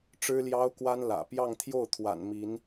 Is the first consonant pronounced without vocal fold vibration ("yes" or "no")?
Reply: yes